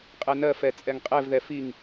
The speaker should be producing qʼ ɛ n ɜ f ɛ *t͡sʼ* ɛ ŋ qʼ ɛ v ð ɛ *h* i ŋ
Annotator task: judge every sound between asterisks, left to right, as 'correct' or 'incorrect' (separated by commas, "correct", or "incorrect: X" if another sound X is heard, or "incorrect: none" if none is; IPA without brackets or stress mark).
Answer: correct, incorrect: f